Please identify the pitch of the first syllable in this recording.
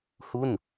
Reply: falling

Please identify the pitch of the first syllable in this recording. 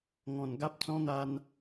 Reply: low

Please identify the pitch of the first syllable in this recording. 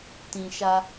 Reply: low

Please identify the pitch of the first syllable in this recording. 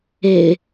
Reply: low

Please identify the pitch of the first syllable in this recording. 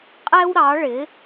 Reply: high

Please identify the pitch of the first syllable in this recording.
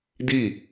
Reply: falling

